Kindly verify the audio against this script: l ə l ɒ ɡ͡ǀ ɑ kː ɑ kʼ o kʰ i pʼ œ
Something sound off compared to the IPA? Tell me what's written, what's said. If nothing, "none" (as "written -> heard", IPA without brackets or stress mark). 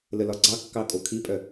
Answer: none